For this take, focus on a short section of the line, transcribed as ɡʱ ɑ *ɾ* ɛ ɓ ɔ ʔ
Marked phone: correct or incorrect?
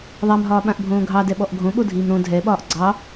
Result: incorrect